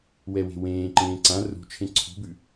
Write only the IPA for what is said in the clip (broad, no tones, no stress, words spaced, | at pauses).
wɛwe̤wẽːǃẽː ǀã rṳt͡ʃʰẽ ǀʰṳbʉ